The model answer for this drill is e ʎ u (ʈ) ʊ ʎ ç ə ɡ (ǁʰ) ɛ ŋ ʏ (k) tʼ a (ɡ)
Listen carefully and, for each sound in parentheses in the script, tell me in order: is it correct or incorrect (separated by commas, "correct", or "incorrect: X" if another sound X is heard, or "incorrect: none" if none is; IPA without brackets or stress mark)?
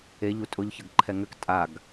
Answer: incorrect: tʼ, incorrect: ǃʰ, correct, correct